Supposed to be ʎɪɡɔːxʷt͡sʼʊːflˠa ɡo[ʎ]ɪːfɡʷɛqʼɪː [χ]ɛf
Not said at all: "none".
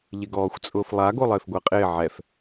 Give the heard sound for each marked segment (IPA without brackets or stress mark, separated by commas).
lˠ, ʕ